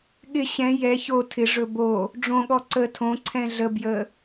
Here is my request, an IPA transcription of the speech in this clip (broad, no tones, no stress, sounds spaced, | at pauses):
ɠ ɪ ɕ ɛ̃ j ɛ ç o tʰ ɪ ʐ ɵ b o | ɖ͡ʐ õ ɠ ɔ ǀ ə tʰ õ ǀʰ ɛ̃ ɮ ə b j ə